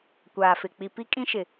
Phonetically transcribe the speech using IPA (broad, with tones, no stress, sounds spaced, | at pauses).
kʷ aː˨ f ɪ˨ k͡p i˨ p i˦ kʼ ĩ˦ ʃ ɪ˨